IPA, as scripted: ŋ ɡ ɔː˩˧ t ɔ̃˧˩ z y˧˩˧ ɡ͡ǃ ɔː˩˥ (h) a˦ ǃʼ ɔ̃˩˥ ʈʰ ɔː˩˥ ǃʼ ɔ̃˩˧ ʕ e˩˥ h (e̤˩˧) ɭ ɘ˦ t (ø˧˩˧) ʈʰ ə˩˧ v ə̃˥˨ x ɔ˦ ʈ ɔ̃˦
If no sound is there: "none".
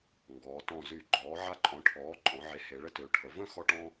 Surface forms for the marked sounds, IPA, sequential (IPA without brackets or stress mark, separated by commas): ʕ, e˩˧, ø˩˧